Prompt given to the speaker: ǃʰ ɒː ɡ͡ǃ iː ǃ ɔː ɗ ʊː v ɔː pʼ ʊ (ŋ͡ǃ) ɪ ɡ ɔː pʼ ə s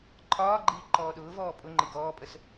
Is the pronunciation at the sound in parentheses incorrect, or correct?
correct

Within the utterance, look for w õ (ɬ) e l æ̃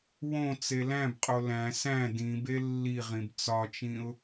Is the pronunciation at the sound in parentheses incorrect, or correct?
incorrect: t͡s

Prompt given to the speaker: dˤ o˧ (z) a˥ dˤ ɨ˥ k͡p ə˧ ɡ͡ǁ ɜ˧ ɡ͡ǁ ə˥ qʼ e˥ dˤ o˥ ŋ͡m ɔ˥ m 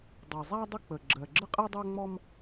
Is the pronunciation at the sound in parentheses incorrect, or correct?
incorrect: zˤ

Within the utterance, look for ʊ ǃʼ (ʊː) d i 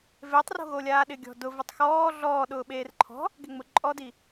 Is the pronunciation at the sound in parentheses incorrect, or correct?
incorrect: ɔː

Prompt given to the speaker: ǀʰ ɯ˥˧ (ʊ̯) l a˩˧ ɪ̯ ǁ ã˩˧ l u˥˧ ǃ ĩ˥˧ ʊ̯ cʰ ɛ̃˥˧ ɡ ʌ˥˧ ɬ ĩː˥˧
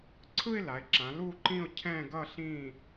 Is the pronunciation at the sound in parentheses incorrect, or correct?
incorrect: ɪ̯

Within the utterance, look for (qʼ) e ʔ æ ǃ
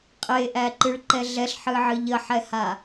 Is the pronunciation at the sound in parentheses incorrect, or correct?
correct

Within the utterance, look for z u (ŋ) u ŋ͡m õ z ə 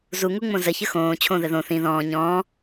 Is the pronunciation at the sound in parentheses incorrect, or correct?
correct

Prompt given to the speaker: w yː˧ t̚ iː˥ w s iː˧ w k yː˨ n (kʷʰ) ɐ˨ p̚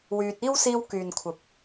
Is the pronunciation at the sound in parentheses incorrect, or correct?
correct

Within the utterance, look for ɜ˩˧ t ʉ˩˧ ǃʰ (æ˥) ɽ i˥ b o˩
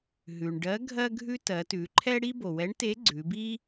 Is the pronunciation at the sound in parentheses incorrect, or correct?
incorrect: ɛ˥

